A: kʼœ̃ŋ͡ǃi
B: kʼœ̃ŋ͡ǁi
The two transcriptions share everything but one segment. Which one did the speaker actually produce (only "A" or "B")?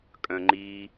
A